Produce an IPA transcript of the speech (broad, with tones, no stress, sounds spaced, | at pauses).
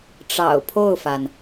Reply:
ʈ͡ʂ ɑ̰˨˩ ʊ̯ pʰ o˥˩ ʊ̯ f a˩ n